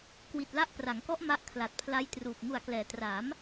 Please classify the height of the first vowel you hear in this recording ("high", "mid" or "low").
high